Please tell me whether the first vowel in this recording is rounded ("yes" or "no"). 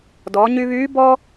yes